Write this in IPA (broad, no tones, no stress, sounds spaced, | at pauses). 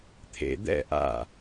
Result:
t̪ʰ ḛ d̪ ɛ̰ ʔ a̰